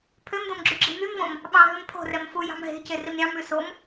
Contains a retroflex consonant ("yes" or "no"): no